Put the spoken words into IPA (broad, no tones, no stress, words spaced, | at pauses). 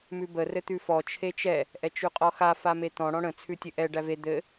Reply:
mʉbə rɘt̪ʉfɔ t͡ʃʰet͡ʃɛ | ʔɛt͡ʃʉqʼɔxa famet̪ɔ̃ ɽɔ̃ɽə̃ t͡sʰʉtʲɘʔɛ ɖæve d̪ɘ